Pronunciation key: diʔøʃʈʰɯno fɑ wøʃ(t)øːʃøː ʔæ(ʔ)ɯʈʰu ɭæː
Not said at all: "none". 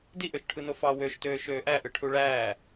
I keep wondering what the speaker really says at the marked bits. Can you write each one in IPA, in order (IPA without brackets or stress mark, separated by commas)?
t, ʔ